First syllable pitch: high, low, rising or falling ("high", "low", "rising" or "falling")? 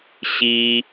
high